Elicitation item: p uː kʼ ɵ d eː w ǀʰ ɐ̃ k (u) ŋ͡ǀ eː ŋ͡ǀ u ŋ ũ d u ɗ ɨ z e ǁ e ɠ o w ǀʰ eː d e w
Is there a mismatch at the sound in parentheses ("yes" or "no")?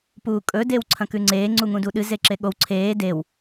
yes